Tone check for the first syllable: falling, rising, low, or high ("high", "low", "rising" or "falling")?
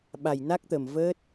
low